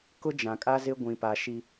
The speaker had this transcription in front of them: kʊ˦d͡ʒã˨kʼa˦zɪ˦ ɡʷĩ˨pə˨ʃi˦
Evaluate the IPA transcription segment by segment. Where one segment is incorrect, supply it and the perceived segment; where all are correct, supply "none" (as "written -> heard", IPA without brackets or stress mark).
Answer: ə˨ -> a˨